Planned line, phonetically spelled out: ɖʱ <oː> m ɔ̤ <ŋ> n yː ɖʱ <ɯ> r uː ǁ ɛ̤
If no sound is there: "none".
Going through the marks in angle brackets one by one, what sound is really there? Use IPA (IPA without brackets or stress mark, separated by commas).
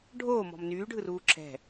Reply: oː, m, ɯ